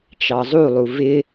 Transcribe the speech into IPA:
t͡ʃ ɑ zˤ u lˠ u v ɪ

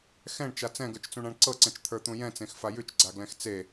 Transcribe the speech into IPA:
x ɛ̃ ɳ t͡ʃ a t͡s ɛ̃ ɡ ə˞ t͡ʃ t͡s ũ ɳ ã ɳ ǀ ɤ ǀ ɛ̃ t͡ʃ t̪ʰ ə˞ t̪ ũ j ɛ̃ t͡s ẽ x f a j ʉ t͡ʃ ɡ͡ǀ a ɡ l ɛ̃ x t͡s e

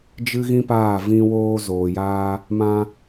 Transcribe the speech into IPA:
d͡ʒ ɨ˦ ɣ ĩ˦ p aː˦˨ v ĩ˧ w oː˧ z oː˨ j aː˧ | m ã˧

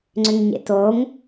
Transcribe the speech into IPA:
ŋ͡ǀ ʏ ŋ ɲ ḛ t o ŋ

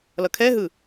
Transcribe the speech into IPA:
l ʌ kʰ ɛ ɦ ɯ

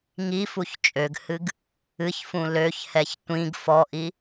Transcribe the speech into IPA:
ŋ i f u ç t͡ʃʼ ø ɡ h ɨ ɡ | ɨ ç f ũ l ø ç h ɛ ç tʷ ĩ ɡ f ɔ ʔ i

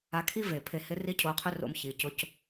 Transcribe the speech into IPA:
a˧ kʰ i˦ v e˨ pʰ e˧ h ɪ˦ r i˦ cʰ o˧ qʰ ʏ˦ r o̰˧ m ç i˨ c ʊ˧ c

